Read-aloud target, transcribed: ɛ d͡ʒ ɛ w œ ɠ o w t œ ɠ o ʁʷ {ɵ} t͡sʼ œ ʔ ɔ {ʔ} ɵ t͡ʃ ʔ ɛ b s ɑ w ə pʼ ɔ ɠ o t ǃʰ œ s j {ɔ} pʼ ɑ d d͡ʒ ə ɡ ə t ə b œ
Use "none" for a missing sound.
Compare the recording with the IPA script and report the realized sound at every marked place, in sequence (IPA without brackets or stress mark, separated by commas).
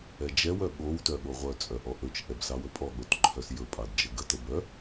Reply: œ, ʔ, ɵ